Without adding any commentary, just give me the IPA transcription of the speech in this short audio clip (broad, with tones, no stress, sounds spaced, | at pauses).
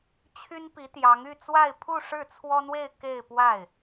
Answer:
t͡ɕʰ y˥ n p i˧˥ t̪ j ɑ˧˥ ŋ y˥˧ t͡s w a˥˧ ɪ̯ pʰ u˥˧ ʂ ɻ̩˥˩ t͡sʰ w ɔ˥ n̪ w e˥˧ ɪ̯ k e˥˧ ɪ̯ p w a˥˩ ɪ̯